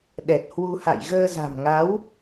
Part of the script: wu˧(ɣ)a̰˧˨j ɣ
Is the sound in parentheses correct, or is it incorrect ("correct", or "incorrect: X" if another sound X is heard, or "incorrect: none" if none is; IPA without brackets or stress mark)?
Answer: incorrect: h